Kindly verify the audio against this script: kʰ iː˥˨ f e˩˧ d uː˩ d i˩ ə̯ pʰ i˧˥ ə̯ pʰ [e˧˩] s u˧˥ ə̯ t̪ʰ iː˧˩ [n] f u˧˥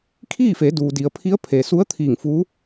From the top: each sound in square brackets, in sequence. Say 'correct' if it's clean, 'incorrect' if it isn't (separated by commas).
incorrect, incorrect